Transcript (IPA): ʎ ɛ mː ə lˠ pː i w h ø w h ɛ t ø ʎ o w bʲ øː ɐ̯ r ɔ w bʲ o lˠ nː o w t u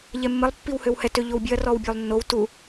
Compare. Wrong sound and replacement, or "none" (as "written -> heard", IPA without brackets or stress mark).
øː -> ø